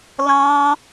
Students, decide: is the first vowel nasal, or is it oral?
nasal